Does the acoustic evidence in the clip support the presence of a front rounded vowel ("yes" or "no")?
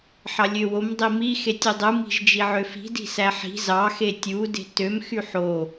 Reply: yes